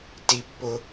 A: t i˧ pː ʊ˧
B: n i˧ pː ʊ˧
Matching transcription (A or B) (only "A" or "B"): A